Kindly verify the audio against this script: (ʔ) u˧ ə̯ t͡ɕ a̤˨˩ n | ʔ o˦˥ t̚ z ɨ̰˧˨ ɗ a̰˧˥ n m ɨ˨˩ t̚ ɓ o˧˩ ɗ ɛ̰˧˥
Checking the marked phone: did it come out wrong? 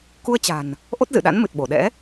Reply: yes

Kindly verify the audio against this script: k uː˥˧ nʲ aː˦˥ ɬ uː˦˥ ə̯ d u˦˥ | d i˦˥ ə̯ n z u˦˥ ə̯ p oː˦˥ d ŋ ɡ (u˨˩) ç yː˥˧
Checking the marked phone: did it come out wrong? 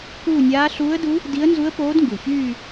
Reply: no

